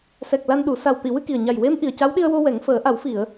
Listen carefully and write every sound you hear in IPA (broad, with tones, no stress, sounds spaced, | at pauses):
s ɛ˨˩ k̚ l a˧ n ɗ u˨˩˦ s a˨˩ w t̪ i˨˩˨ w ɨ˧ k i˨˩ ə̯ ɲ a˨˩ j w e˧˥ m ʔ i˨˩ ə̯ c a˧˥ w ɗ i˧ ə̯ w o˧ w ɛ˨˩˦ ŋ f əː˨˩˦ ʔ a˨˩˦ w f i˨˩˨ ə̯